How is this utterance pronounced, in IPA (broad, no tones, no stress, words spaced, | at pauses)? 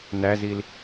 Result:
næzil